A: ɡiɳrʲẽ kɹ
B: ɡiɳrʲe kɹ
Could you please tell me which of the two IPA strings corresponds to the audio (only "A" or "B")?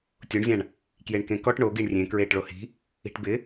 A